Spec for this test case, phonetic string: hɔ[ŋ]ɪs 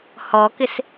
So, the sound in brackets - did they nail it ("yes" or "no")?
no